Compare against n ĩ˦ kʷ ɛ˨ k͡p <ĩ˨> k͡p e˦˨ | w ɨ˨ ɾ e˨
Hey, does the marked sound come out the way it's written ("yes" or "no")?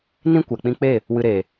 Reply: no